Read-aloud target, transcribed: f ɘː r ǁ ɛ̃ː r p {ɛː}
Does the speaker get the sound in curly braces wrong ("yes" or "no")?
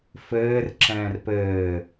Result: yes